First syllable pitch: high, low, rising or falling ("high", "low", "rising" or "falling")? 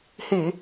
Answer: low